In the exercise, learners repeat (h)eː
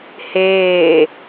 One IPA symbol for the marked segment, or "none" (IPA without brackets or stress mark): h